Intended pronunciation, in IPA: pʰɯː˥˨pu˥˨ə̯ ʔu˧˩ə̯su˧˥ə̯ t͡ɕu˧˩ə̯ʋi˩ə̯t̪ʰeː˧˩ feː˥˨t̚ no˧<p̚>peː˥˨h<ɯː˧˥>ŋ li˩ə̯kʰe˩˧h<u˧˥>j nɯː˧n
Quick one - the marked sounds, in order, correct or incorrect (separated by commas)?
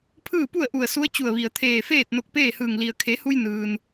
incorrect, incorrect, incorrect